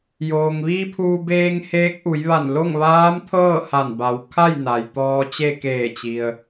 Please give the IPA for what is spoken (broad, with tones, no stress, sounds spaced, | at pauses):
j oː˩ ŋ ʋ iː˧ pʰ uː˧ b eː˧ ŋ h eː˧˥ k̚ ʔ u˩˧ j ʋ a˧˩ n l o˥˨ ŋ ʋ aː˧˥ m t̪ʰ ɤː˥˨ h a˧˩ n b a˩˧ w kʰ a˥˨ j n a˩ j t̪ ɔː˧ t͡ɕ e˥˨ k eː˧˩ t͡ɕ i˩ ə̯